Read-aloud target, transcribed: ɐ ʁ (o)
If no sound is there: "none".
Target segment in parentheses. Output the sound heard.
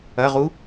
u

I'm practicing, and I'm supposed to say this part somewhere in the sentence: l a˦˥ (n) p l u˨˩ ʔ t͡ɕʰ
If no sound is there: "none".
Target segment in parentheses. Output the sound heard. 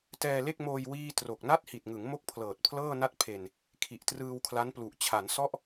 n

